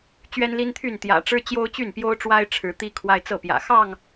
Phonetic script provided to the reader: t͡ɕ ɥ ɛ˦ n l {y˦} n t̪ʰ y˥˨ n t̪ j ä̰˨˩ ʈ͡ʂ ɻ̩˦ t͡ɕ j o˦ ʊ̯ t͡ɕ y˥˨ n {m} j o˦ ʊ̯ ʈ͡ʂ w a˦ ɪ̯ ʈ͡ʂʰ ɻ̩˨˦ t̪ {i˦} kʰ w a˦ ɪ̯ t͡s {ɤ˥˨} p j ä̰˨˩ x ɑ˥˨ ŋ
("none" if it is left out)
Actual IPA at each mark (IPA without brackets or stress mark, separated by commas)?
i˦, p, i˦, ɤ˥˨